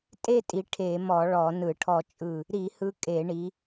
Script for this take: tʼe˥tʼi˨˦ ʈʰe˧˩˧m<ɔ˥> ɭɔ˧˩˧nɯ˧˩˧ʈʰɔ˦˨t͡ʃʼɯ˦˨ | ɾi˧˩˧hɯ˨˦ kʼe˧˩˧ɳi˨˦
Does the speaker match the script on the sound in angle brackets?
no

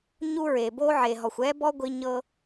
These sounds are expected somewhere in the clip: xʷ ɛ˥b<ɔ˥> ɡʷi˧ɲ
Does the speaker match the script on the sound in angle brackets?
yes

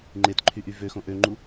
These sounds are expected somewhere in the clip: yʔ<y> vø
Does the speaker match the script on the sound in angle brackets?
yes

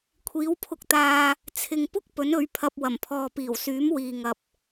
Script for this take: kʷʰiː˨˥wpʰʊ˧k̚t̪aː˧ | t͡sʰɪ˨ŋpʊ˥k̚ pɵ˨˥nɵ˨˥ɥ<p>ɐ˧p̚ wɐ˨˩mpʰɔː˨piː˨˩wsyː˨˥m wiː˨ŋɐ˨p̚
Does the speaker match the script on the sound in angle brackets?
no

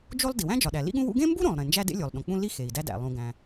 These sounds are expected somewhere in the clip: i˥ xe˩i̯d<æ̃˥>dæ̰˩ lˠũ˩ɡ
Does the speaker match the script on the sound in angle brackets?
no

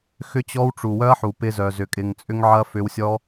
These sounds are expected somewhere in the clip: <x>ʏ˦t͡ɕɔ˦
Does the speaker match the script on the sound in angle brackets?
yes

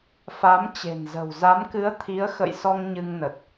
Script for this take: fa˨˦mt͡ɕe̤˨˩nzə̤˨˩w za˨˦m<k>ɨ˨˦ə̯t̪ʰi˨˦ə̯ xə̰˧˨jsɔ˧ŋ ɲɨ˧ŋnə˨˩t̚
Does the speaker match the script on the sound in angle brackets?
yes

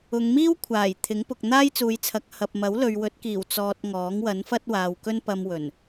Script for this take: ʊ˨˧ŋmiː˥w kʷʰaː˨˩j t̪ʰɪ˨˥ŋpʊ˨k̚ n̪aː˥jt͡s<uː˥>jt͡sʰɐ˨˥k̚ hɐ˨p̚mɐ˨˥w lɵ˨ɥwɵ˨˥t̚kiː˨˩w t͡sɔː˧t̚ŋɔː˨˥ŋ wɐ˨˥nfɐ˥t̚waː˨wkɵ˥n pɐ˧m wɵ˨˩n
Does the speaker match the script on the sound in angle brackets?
no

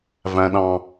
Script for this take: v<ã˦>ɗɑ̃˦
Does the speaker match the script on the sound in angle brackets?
no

